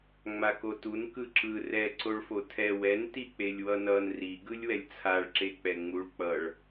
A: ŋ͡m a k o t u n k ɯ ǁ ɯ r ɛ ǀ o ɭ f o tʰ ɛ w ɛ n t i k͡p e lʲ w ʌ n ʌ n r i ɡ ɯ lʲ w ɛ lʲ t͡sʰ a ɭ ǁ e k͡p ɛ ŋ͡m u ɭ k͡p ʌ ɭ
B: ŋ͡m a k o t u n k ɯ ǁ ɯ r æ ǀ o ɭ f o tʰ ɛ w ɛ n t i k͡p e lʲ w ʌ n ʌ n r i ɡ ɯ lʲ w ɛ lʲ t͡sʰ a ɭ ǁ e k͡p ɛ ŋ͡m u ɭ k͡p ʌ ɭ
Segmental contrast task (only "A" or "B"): A